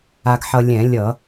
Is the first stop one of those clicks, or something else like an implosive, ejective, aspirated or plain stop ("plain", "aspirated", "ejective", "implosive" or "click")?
plain